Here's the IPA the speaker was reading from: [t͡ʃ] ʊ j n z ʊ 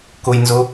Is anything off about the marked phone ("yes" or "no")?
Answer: yes